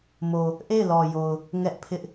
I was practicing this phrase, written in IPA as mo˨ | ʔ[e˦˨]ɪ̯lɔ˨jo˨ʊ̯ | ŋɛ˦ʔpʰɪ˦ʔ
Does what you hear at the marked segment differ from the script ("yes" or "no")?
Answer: no